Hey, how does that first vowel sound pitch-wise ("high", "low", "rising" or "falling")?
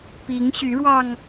rising